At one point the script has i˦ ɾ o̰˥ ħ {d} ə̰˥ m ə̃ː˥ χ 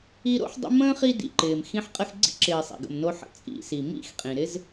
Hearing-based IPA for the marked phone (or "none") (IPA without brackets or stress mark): dˤ